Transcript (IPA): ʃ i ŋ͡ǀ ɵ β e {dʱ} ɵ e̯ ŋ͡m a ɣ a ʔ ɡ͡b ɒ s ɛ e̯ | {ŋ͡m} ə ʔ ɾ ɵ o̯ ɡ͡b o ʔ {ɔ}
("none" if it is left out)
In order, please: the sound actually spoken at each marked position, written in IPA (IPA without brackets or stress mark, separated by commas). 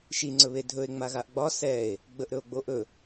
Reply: dʱ, ɡ͡b, ɵ